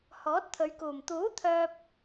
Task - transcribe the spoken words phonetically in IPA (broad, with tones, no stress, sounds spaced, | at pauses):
h ɔː˨˥ t̚ t̪ʰ ɵ˨˧ ɥ k uː˨˩ m t̪ uː˨˥ t̪ʰ œː˧ p̚